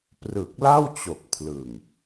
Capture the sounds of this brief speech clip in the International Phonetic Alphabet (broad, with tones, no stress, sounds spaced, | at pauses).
p r ɯ˨˩ k̚ l a˥˩ w t͡ɕ o˨˩ k̚ pʰ l ɯ˨˩ ŋ